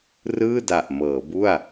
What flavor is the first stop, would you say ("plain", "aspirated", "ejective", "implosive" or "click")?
plain